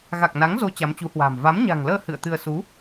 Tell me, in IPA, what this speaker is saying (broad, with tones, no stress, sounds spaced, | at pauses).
ɣ a˨˩ k̚ n a˨˦ ŋ z o˨˦ t͡ɕ a˨˦ m t͡ɕ u˨˦ h w a̤ː˨˩ m v a˨˦ m ɲ a̤˨˩ ŋ l əː˧ h ɨ̰˧˨ ə̯ t̪ ɨ˧ ə̯ s u˨˦